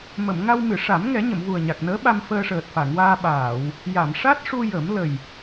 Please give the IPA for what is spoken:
mə˨˩˨m ŋa˧wmɨ˨˩˨ʂa˨˩˦m ŋɛ˨˩˦ɲə˨˩˨mvu˨˩ə̯ ɲa˨˩k̚nəː˧˥ɓa˧m fəː˧ʂəː˨˩t̚fa˨˩˨ŋwaː˧ ɓaː˨˩˨w | ja˨˩˨mʂa˦˥t̚ʂu˧ jə˨˩˦m lə˨˩j

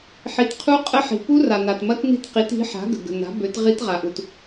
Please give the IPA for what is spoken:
ħi˩t qʰu˦˥ qʼə˦˥ħi̤˩ pu˦˥ra˩ na˩tmɐ˦˥tni̤˦˥tqi˩˥t i̤˩˥ħa̤˩˥ ɡə̤˩ɡə̤˩na̤˩˥ bø˩˥tʁi˦˥t ʁa˩ʔu˩t

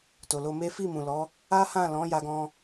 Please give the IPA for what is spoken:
to˨lo˧me˦ fi˦˨mũ˨lɔ˨˦ | a˦hã˦˨ lɔ̃˨˦ ja˧ɡɔ̃˧

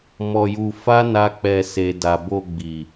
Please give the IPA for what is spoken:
mɔ˧ju˧ fa˦ na˦k͡pɛ˧ se˨ da˨ bo˧ɡ͡bi˨

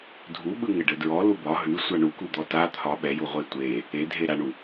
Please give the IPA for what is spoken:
dʱuɓɯ ŋɘɖɘdɹɔ lubɒ ɦʉ sʷaɳukud̪ɔ ta t̪ʰɒ ɓɛju ʁʷetʷe | e dʱeɾaɳu

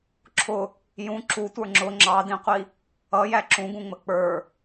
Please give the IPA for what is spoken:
ǁʰʊ | jũ ǁutʷə˞ ŋ͡ǁʊ ŋ͡ǁɑdĩqʷi | ʌjæ ǁũɡũŋ͡mə k͡pə˞

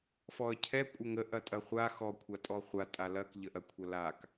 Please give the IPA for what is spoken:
fɔə̯cʰɛ kʷʼəŋə ʔɐtʼɐχʷa xɔ kʷʰatʼɔχʷa tʼalɐk ʎəʔɐkʷʰɐlak

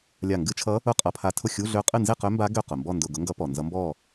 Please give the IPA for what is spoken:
lʲa˧˩ŋɡɨ˧˥˧t͡ʃʰʌ˧˥ | ʊ˥˨qʼʌ˧˥˧pʰa˧˥tʰʊ˥˨ xʲu˧˥˧ɮø˧˥qʼɨ˥˨ nze˥˨qø˧˥mba˧˥ ɡø˥˨ qʊ˩mbɔ˥˨ ndʊ˧˩ɡʊ˧˥ŋɡʌ˧˥ pɔ˩ nzʌ˧˥mbɔ˥˨

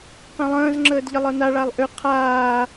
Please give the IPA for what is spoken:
qẽlˠə̃ːz ŋ͡ǁəːdʎəlˠɤna ɭalˠʔʏ qʰaː

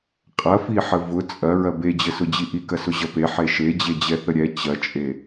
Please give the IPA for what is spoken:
qʼɐfiħə vʊ t͡sʼɐɹɐ bed͡ʑəsʊd͡ʑi ʔikɐsʊʑɐ peħe ʃed͡ʑed͡ʑɛθə ɾʲɛ t͡ɕɐt͡ʃʼe

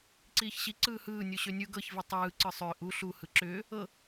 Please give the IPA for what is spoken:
ǀiːçɕi ǀɯːhɯːnʲu ɕønʲɯ ɡɤçvi tˤɯː ǀɯsˤʏːʔ u ɬu hɯǁʏː | ɤ

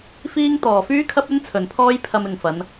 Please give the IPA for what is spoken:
fiː˥ŋ t̪ɔː˨fyː˥kʰɐ˥p̚ɵ˥n t͡sʰɵ˨npʰɔː˥j pʰɐ˧mɪ˨ŋfɐ˨˧n

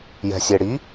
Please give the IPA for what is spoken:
jɛ̤sʲeɽi

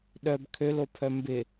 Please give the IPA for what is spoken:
ɗœb kʰølopʰœ mbɪ

